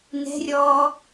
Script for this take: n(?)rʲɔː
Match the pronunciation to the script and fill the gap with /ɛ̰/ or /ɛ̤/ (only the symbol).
ɛ̤